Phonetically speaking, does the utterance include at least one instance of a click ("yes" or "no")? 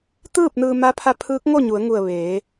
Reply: no